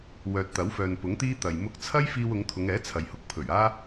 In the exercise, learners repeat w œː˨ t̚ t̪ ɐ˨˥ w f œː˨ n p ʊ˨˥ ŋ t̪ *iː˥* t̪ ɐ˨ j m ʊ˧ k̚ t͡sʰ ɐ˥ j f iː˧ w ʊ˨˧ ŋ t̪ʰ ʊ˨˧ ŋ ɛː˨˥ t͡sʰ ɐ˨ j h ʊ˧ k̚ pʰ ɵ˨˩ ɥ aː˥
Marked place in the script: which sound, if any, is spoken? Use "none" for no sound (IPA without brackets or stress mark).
iː˥